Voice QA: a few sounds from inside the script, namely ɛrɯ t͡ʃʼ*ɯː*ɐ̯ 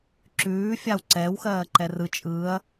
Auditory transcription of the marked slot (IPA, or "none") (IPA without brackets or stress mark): ɯː